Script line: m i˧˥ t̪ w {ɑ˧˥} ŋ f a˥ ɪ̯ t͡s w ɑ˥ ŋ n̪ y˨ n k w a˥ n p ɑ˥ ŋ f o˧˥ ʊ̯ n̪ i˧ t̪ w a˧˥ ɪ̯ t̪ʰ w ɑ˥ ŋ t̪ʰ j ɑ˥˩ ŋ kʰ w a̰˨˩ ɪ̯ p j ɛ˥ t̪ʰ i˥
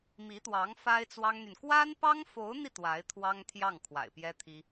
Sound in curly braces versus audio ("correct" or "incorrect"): correct